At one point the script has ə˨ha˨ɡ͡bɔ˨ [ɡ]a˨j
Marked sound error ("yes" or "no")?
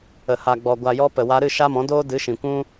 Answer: yes